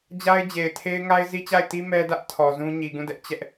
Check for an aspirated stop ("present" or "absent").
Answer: present